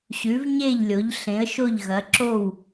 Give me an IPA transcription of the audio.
ɕ ʉ˩˧ v ɲ e˧˩ ʎ lʲ o˩˧ ʎ ɬ ẽ˩˧ ə̯ ʃ o˧˩ ʎ ɣ ɐ˩˧ ǁ o˧˩ w

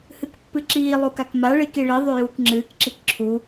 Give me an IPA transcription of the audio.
h ɨ k pː ɨ ǁ iː lˠ u k a k m a ɭ i k i ɭ i ðˤ y j uː k ŋ͡ǁ ɨː k ǁ i k ǁʰ u

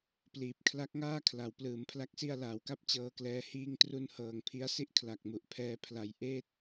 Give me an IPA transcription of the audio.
p l iː˨˩ p̚ kʰ l a˦˥ k̚ ŋ aː˥˩ kʰ l a˩˦ w p l ɯː˩˦ m pʰ l a˦˥ k̚ s i˧ a̯ l aː˩˦ w k a˥˩ p̚ t͡ɕ ɤː˧ k l ɛː˧ h iː˧ ŋ t r u˧ n h ɤː˨˩ ŋ pʰ i˦˥ a̯ s i˥˩ ʔ kʰ l a˨˩ k̚ m u˨˩ ʔ pʰ ɛː˧ pʰ l a˩˦ j ʔ eː˥˩ t̚

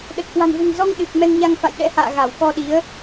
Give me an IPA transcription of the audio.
ɗ ə˨˩ t̚ k w a̤˨˩ n v e̤˨˩ ŋ z ɔ˧ ŋ ɗ ɨ˨˩ k̚ m ɛ˧ ŋ ɲ a˧ ŋ f a̰˧˨ j ɗ ɛ̰˧˥ h a̰ː˧˨ ɣ a˧˩ w k ɔ˧ ɗ i˨˦ ə̯

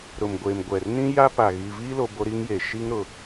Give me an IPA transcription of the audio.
ɾ ʊ˨ m ɡʷ e˨ m ɡʷ ɛ˨ r n ĩ˦ j a˦ p a˨ ɣ i˨ v iː˦ l o˨ b o˦ ɾ i˦ ŋ j e˨ ʃ i˦ ŋ ɾ ʊ˨

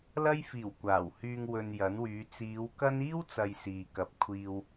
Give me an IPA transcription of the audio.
l ɐ˥ j f iː˨˩ w kʷ aː˨˩ w h yː˧ ŋ w ɵ˧ n j ɐ˨˥ n w yː˨˧ t͡s iː˨˧ w k ɐ˥ n iː˥ w t͡s ɐ˨ j s iː˨ k ɐ˨ p̚ kʷʰ iː˧ w

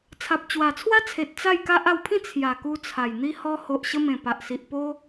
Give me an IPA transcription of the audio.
t͡sʰ a˨ p̚ t͡ɕ w a˨˩ t͡sʰ w a˦ t͡sʰ e˨ t̚ t͡s a˥˧ j k a˦ ʔ a˧ w pʰ ĩ˥˧ t͡sʰ j a˨˩ k u˧ t͡sʰ a˨˩ j n̪ i˧ h ɔ˧ h o˨ ʔ ɕ ə˧ m ẽ˨˩ p a˨ ʔ s i˨ ʔ p o˦

